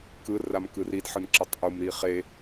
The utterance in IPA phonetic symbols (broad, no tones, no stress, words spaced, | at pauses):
kɯ ramkɯridħɯn ǁʌtˤʔumɾi χe